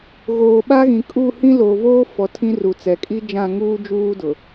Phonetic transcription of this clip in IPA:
ɣ oː˨ ɓ a˦ ɣ ĩ˨ kʼ u˦˨ h ĩ˦ l oː˨ v oː˦ f ɔ˨˦ tʰ ĩ˦ r u˨ t͡s ɛ˨ kʼ i˦ d͡ʒ ã˦˨ ŋ uː˦ d͡ʒ uː˦ d ʊ˨

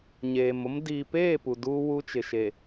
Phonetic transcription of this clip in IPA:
ɲ eː˨ m ʊ˦ m d iː˨ p eː˦˨ p u˨ d uː˦ w u˦ t͡ʃ ɪ˨ ʃ e˨

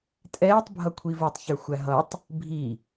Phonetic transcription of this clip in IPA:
tʼ ɛː tˤ bʱ ʌ kʷʰ i v ə˞ tˤ ç ə˞ xʷ æ ɦ ʌ tˤ | bʱ i

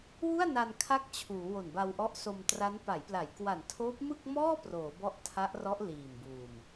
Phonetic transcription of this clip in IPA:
w u˥˩ a̯ n a˧ n kʰ a˦˥ k̚ t͡ɕʰ uː˩˦ w o˨˩ n b a˧ w ʔ ɔ˦˥ ʔ s o˧ m t r a˦˥ n p a˩˦ j p l a˩˦ j k w a˨˩ n tʰ oː˦˥ p̚ m ɯ˥˩ k̚ m ɔː˥˩ p r oː˩˦ b ɔ˦˥ ʔ tʰ a˦˥ ʔ r ɔ˦˥ ʔ l iː˨˩ m b uː˨˩ m

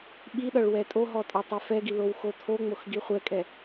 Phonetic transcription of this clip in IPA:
ɓ i ɗ ʌ ɭ w ɛ tʼ o ɦ ɔ tʼ ɒ tˤ ɛ f ɛ ɡ i l o w x o tʰ o ŋ͡m o x ɡ i χʷ ɛ kʼ ɛ

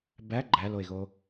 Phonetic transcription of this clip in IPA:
b æ ɡ͡ǃ æ l o e̯ ɣ o

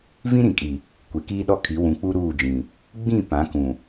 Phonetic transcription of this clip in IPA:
v ĩ˦ ɾ ĩ˨ kʼ i˨ | kʷ e˨ k iː˦ ɗ ɔ˦ kʰ i˨˦ w ũ˨ k͡p u˦ ɾ uː˦˨ d͡ʒ ĩ˨ | ɡ͡b ĩ˦˨ p ã˨˦ k ũ˨

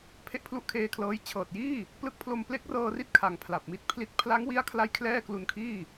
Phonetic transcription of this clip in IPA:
pʰ e˥˩ ʔ pʰ l u˥˩ ʔ kʰ eː˧ kʰ l ɤː˦˥ j t͡ɕʰ ɤː˨˩ t̚ j iː˥˩ | p l ɯ˦˥ k̚ pʰ l o˧ m p l e˦˥ k̚ r ɤː˧ r i˥˩ t̚ kʰ a˩˦ ŋ pʰ l a˨˩ p̚ m i˥˩ t̚ pʰ l i˦˥ t̚ pʰ l a˦˥ ŋ w i˦˥ a̯ kʰ l a˧ j kʰ l ɛː˥˩ k l u˧ n kʰ iː˥˩

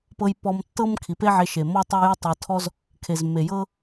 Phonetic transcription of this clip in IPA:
p ɤ˧ j p ɔ˧ m tː ɤ˦ m kʰ i˨ p e˦ ʕ e˧ ʃ e˨ m ɔ˦ tˤ o˦ j o˦ tˤ ɤ˧ tʰ ɔ˦ z | kʰ e˨ z mː e˨ j ɤ˦

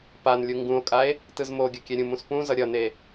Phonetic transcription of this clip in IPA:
p a n lʲ u ŋ ɡ ũ o̯ kʼ a e̯ | t ɯ z m o ɡʲ ʌ kʲ ɛ ɾʲ ũ m ũ s p ũ z ʌ ɾʲ ʌ n e

